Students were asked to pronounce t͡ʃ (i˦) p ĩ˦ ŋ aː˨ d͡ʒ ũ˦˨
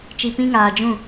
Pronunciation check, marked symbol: incorrect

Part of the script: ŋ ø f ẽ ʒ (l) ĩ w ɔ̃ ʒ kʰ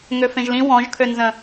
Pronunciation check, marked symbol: correct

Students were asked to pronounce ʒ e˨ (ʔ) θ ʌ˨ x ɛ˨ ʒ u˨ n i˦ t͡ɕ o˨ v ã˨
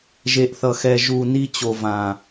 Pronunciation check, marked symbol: correct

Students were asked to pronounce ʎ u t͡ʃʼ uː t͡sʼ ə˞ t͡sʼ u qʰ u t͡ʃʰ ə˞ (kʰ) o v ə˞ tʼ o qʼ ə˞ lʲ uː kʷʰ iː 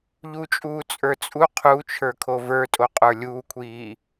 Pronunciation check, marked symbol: correct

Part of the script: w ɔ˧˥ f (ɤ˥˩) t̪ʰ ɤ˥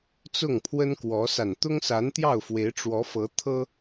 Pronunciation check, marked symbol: incorrect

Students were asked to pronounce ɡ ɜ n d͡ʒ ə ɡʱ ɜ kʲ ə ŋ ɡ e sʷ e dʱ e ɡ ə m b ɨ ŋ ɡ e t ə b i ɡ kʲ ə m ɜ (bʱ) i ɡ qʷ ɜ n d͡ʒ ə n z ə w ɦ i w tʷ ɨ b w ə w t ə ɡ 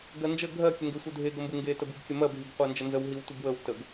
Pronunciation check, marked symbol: correct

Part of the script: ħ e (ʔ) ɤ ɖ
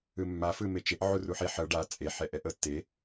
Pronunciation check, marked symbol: incorrect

